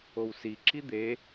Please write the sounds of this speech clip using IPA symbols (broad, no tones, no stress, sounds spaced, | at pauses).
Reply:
o w s i ǁ i d̪ e